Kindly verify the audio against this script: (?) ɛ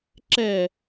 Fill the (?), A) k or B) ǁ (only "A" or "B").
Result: B